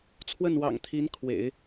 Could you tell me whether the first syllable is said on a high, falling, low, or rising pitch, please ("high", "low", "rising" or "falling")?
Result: falling